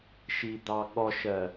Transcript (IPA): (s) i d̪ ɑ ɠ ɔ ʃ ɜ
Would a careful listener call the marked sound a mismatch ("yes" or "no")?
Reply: yes